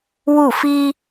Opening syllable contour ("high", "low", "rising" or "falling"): falling